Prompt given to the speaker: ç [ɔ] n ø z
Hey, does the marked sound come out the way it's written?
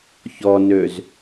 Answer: yes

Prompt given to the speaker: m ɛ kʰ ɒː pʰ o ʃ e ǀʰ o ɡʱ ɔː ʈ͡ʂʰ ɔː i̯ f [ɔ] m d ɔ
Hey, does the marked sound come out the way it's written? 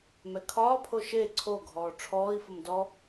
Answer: no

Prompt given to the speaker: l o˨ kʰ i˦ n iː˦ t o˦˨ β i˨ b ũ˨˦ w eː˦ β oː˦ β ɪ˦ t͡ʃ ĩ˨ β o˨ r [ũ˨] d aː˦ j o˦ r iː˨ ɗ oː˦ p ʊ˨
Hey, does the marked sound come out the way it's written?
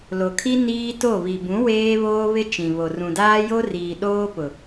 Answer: yes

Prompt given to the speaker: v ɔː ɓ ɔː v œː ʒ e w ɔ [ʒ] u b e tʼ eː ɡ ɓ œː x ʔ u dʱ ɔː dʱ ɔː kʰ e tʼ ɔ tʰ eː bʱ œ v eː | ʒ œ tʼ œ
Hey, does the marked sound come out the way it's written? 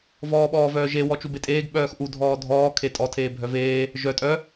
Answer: no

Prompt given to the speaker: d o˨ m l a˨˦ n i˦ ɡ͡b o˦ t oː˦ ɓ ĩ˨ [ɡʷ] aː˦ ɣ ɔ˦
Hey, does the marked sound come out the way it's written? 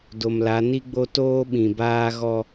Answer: no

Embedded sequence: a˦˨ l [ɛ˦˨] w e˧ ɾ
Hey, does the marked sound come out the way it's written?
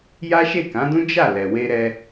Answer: no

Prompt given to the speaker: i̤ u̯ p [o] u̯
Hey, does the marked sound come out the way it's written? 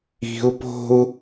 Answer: no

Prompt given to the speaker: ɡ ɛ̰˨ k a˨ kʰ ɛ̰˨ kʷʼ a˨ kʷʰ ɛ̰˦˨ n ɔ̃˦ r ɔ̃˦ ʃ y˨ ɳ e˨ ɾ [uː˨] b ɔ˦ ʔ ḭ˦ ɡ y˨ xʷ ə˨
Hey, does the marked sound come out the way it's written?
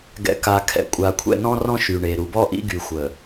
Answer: no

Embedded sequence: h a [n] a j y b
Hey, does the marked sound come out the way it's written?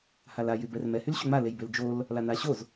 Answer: no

